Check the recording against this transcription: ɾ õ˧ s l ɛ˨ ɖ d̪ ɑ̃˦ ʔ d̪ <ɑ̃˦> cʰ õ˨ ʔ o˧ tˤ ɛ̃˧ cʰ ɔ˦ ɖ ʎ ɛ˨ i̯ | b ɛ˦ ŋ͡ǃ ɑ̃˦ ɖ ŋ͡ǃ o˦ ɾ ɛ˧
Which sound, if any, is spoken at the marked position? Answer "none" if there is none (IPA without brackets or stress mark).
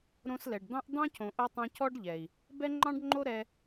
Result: ɑ̃˦